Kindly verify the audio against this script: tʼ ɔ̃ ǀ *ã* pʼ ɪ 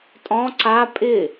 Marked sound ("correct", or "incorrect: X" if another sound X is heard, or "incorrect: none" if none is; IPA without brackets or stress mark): incorrect: a